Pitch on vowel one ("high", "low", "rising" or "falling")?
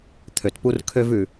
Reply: low